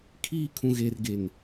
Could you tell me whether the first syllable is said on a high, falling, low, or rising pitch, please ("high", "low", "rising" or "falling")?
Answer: high